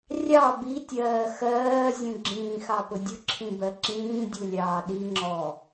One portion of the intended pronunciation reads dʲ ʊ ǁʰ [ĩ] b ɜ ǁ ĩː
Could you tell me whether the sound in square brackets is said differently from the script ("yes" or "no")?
no